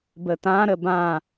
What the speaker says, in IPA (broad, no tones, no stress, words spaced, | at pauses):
bət̪ã ɾəbã